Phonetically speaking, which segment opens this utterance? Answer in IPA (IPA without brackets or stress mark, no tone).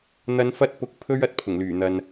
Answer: n̪